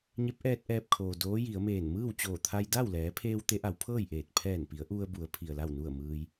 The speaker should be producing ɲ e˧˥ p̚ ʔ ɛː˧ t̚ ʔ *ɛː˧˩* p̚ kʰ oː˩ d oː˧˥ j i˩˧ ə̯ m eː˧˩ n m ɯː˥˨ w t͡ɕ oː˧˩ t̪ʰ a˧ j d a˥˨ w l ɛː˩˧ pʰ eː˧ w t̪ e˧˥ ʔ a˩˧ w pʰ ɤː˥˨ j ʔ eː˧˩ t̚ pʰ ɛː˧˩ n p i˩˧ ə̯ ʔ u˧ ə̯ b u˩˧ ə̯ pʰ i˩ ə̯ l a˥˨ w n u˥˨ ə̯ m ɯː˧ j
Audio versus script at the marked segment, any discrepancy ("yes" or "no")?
yes